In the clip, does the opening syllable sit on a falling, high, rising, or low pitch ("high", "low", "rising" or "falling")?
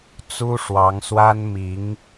high